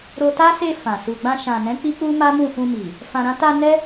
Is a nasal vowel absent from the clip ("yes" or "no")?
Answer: no